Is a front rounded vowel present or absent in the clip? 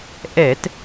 absent